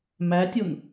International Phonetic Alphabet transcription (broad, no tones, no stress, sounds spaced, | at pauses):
m æ tʲ o n